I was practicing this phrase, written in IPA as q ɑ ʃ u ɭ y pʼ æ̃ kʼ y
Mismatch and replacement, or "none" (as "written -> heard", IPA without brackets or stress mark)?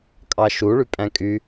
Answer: q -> kʼ